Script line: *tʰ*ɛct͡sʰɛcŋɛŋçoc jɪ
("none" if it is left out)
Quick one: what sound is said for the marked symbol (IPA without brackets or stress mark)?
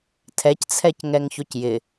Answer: tʰ